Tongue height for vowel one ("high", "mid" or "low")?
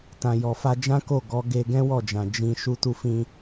low